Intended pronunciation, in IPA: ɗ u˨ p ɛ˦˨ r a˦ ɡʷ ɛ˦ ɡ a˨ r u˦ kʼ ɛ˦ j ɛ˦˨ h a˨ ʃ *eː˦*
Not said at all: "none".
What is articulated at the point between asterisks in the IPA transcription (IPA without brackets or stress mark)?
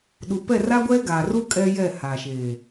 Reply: eː˨